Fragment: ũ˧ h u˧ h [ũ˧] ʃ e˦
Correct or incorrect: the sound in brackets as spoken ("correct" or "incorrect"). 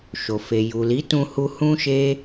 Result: incorrect